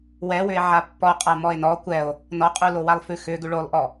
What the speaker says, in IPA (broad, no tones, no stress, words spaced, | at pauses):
wɛwʏe̯ ʕapːɔ qʼamɔe̯nɔ kʷɛo̯ | nɔqʼulowalˠ fʉxʏ ɡʉɭolˠʔɔ